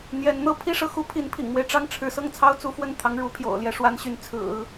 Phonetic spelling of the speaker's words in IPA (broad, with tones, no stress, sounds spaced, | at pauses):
n̪ j ɛ˧˥ n n̪ ɤ˥ pʰ i˥ ʂ ɤ˥˩ x u˥ pʰ i˧˥ n pʰ ḭ˨˩ ŋ m w e˦ ɪ̯ ʈ͡ʂ ɑ˥˩ ŋ ʈ͡ʂʰ ɻ̩˧˥ s ɤ˥˩ ŋ t͡sʰ ɑ˥ ʊ̯ t͡s u˧˥ f w ə˥˩ n t̪ʰ ɑ˧˥ ŋ ɻ u˧˥ pʰ j o̰˨˩ ʊ̯ l j ɛ˥˩ ʂ w a˥ n ɕ y˧˥ n t͡sʰ ɹ̩˨˩˦